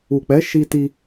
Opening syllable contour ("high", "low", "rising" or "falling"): low